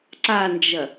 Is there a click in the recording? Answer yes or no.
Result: yes